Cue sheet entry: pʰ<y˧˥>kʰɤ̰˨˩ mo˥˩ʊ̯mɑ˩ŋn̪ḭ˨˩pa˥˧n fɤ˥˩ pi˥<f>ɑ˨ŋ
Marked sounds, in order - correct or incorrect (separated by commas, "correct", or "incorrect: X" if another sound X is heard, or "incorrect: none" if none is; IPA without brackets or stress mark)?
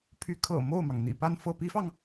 correct, correct